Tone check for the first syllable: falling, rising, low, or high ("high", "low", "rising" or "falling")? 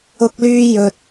high